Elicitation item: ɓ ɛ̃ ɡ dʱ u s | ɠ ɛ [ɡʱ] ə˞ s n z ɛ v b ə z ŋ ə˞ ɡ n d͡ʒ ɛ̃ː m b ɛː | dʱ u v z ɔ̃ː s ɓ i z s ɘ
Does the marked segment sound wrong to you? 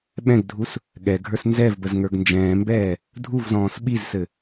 no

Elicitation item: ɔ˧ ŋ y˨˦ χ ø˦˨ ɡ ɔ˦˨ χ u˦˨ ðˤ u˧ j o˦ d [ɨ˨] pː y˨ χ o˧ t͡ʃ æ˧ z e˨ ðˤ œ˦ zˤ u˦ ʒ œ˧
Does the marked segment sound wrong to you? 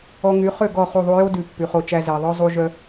yes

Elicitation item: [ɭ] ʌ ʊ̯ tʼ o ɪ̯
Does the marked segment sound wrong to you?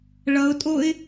no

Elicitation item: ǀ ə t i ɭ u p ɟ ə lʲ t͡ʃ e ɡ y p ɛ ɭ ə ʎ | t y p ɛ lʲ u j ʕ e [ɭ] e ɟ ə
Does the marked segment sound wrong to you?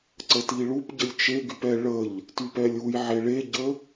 no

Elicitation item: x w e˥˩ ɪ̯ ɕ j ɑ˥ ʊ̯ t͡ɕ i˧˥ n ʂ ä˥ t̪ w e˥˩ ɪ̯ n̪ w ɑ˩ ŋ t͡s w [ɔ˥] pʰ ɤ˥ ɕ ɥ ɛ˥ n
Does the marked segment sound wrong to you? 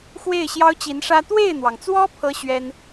no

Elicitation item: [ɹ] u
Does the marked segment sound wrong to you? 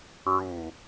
no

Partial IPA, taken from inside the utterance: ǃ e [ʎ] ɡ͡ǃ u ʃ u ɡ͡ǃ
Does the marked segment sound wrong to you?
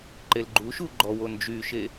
yes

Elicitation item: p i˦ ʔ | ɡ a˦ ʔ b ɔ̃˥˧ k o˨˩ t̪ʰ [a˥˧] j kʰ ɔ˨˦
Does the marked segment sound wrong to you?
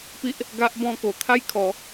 no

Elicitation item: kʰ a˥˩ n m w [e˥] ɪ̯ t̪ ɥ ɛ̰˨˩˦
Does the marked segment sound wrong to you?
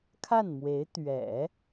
yes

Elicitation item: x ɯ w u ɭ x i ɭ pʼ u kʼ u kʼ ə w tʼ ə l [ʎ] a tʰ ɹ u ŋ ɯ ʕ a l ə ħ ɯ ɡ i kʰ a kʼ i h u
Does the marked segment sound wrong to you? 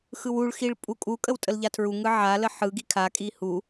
no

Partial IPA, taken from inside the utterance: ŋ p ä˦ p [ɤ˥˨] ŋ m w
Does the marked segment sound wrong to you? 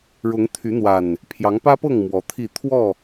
no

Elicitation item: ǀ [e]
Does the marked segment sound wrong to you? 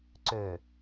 yes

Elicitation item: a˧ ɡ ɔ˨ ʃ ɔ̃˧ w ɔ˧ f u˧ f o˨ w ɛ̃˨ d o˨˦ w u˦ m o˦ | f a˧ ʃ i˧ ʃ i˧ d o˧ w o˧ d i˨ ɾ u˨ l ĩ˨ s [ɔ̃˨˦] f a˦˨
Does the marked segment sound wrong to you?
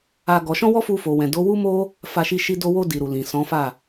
no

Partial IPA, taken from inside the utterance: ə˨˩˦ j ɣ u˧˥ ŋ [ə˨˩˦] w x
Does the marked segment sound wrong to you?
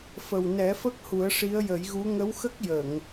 yes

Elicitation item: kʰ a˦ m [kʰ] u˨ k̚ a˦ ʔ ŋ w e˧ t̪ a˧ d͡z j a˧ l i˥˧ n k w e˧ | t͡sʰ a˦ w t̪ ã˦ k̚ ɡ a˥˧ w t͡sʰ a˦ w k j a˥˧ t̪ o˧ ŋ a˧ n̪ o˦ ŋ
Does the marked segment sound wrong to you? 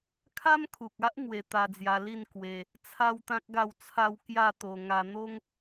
no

